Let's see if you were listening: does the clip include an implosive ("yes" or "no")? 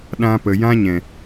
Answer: yes